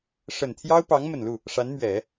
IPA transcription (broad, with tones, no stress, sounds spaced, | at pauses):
ʂ ə˨˩ n t̪ʰ j ɑ˥ ʊ̯ p ɑ˧˥ ŋ m ə˨˩ n l u˥˩ | ʂ a˧˥ n m ɥ ɛ˨˩˦